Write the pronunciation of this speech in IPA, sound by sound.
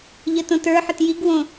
ʎ ə t õ t ə˞ ħ ə t j i ɡ w õ

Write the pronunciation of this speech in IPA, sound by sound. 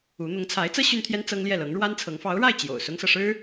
u˧˥ n̪ ʊ˧˥ ŋ t͡sʰ a˧˥ ɪ̯ t͡s ɤ˥ ɕ y˥ n t̪ʰ j ɛ˥ n t͡s ɤ˥ ŋ l j ɛ˥˩ l ɤ˧˥ ŋ ɻ w a˥ n t͡sʰ ɤ˧˥ ŋ f ɑ˧˥ ʊ̯ ɻ a˥˩ ɪ̯ t͡ɕ j o̰˨˩ ʊ̯ s ʊ˥ ŋ s ɤ˨ ʂ ɻ̩˥

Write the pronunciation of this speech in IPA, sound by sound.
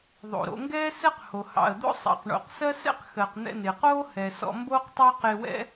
ðˤ o̰˩ ɾ o̰˧ ŋ ɡ ɛː˥ s ɛ˥ q h o˩ h ɑ̰˩ ə̯ d̪ o̰˥ sˤ ɑ̰˩ q ɳ o̰˩ q s ɜ˥ s ɛ̰˥ q x ɜ˩ q n̪ ɛ̰˧ n ɪː˩ q oː˥ h ɛ˩ s ɔ̰˧ m b oː˥ q tˤ ɑː˥ q ɪː˧ w ɛ̰˥

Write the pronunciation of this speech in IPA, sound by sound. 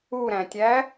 u ɾ æ̃ tʲ æ

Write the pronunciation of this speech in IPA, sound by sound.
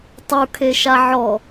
tˤ u kʰ e ʃ a ʕ ɔ

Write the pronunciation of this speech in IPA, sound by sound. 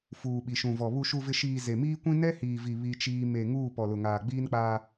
f uː˨ ɓ i˨ ʃ ũ˨ v ɔ˨ β u˨ ʃ u˨ v ɪ˨ ʃ iː˨ z e˨ m iː˦ kʷ ĩ˦ n ɛ˦ h iː˨ v i˨ β i˦ t͡ʃ iː˦ m e˨ ŋ uː˦˨ p ɔ˨ l ʊ˨ ŋ aː˨ ɡ͡b iː˦ n k͡p aː˦

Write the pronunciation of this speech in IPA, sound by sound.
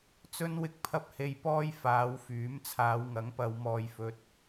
t͡s ɵ˥ n w ɪ˧ k̚ pʰ ɐ˥ p̚ h e˧ j p ɔː˥ j f aː˨˧ w f yː˨˥ m t͡sʰ aː˨˧ w ŋ ɐ˨˥ ŋ p ɐ˨˧ w m ɔː˧ j f ɵ˧ t̚

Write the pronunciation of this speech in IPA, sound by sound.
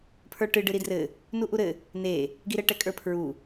pʰ ə˞ ʈ ɨ ɖ ɨ ɾ i d r ɘ | n u ʔ u ɾ ɘ | n e | ɡ i ɾ ɘ ʈ ɛ kʼ ə˞ pʰ ɹ u

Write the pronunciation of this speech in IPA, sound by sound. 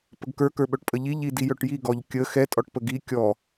p ə ɡ k ə˞ k ə˞ ɓ œ ʈ pʼ ə ʎ i ʎ i d i j œ ʈ j i ɡ ɔ ʎ kʲ ə x ɛ tʼ ɔ ʈ p ə ɡ i kʲ ɔ

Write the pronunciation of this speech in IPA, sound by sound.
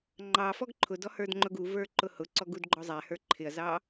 ŋ͡ǃ ɑ f ɔ ɡ ǃʰ ʊ d ɔ h ə˞ d ŋ͡ǃ ʊ ɡ u v ə˞ ǃ ʊ h ʊ ǀ ɔ ɡ u d ɡ͡ǃ ɔ zˤ æ h ə˞ ǃʰ ɪ ɐ̯ z ɑ

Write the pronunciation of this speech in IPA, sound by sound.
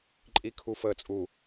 ǃʼ i kʰ u f əː t͡sʼ u

